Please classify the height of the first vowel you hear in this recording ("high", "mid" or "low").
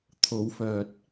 mid